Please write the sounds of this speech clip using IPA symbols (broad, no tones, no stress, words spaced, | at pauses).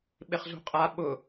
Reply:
ɓɪχzṳqʼa ɓʊ